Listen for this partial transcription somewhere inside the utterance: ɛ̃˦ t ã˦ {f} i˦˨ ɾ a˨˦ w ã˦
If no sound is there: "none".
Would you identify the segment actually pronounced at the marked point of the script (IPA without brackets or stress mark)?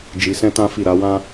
f